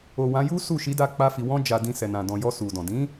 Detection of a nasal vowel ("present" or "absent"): present